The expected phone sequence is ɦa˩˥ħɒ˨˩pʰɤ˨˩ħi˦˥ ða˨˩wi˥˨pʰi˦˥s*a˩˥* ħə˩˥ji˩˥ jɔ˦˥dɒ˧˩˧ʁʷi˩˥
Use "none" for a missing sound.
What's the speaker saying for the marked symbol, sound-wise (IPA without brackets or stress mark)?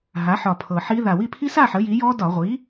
a˥˨